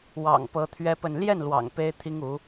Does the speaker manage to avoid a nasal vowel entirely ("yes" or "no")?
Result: yes